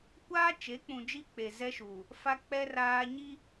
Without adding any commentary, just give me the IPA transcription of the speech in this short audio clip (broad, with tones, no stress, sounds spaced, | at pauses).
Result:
kʷ aː˦ t͡ʃ e˨˦ k͡p ũ˨ d͡ʒ i˦ k͡p e˨ z ɛ˦ ʃ uː˨ | f a˦ k͡p ɛ˦ r aː˦ ɲ i˦